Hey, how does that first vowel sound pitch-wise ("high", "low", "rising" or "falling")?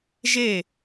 falling